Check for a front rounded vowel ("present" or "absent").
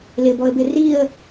absent